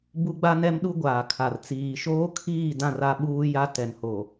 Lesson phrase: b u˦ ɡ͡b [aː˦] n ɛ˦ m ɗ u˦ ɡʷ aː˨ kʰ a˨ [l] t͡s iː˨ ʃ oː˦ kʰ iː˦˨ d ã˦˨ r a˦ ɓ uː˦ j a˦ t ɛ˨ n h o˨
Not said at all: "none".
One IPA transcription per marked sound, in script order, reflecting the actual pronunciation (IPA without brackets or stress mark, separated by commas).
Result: a˦, r